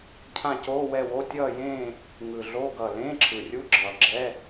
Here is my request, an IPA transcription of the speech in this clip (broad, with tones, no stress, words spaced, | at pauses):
cʰã˦˨coː˧˥˧wɛ˦˨wo˧˥˧ tʲʌː˦˨jẽː˦˨ | ŋɯ˨˩ɮo˧˥˧ ɡʌː˨˩lẽː˧˥˧ǁʰɯ˨˩rʲu˧˥˧ ɡ͡ǁʌː˨˩ɡ͡ǁɛ˧˥˧